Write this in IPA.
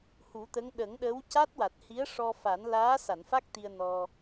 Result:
hu˨˩˦t̪ə˧˥ŋ ɗə˨˩˦ŋɗə˧˥w ca˦˥t̚wa˨˩t̚hi˧˥ə̯ ʂɔ˧fa˨˩˦n laː˧˥sa˨˩˨nfa˦˥k̚ t̪i˧ə̯nɔ˧

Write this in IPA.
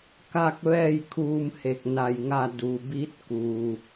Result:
ka˥˨k̚ ʋɛː˥˨jkʰuː˧mhe˧˩k̚ na˧˩jŋa˥˨ du˩bi˧˥t̚kuː˩

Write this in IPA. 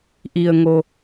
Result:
ʔi˩ə̯ŋo˩

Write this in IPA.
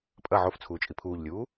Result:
pʼɐ ʕoft͡sʰuːt͡ʃʼi pʰuːʎlʲuː

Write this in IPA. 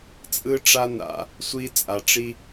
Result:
t͡sʼɯ˦ʈ͡ʂa˦ na̰˧ | sʷi˦t͡sʼa˧ʈ͡ʂi˦

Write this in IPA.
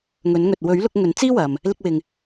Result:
ŋɵ˨˥nŋɵ˨t̚ wɵ˨˥ɥlʊ˧k̚ ŋɵ˨˥nt͡siː˥wɐ˨m | lɪ˧k̚wɪ˨ŋ

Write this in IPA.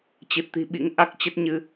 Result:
t͡ɕɨ˨˩t̚t̪i̤˨˩ ɓḭ˧˥ŋʔa˦˥k̚t͡ɕə˦˥t̚ɲɨ˧

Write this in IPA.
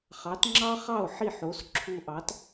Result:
χɑ˩˥tŋ͡ǁɑ˥χɑ˥˩o̯ ħi˥˩ħo˩˥sǁʰu˧ʔɑ˩˥t

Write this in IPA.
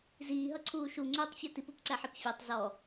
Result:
ziːɦʌǀʰuː ʃuŋ͡ǀuːtˤfʲɔ tipupǀæħip fʲætˤ zɔ

